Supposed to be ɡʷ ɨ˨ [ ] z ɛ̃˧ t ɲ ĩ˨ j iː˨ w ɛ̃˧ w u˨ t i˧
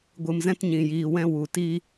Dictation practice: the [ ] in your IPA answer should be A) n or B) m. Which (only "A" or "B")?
B